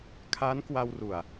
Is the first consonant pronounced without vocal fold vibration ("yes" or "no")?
yes